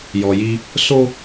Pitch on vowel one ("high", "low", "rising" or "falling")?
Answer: low